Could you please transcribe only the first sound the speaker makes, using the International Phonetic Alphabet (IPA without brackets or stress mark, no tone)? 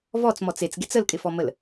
v